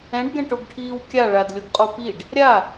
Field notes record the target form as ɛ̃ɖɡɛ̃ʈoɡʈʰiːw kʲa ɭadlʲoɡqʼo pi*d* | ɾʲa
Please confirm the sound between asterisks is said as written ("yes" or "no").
no